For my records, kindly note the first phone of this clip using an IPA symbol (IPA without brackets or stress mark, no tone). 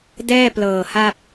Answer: d